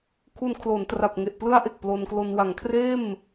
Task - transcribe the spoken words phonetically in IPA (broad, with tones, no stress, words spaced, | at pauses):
kʰu˧nkʰlo˩˦ntra˨˩p̚ ŋe˨˩ʔplɯ˦˥a̯ ʔe˨˩k̚plo˧nklo˧n wa˩˦ŋkʰreː˥˩m